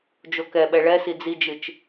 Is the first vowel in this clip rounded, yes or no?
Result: yes